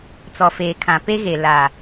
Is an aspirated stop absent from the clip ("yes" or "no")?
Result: no